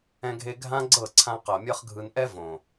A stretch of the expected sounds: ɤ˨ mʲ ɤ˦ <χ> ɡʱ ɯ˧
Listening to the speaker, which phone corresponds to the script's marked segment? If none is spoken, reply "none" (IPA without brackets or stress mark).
χ